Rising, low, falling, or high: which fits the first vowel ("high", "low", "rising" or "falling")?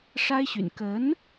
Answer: high